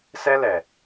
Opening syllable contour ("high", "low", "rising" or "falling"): high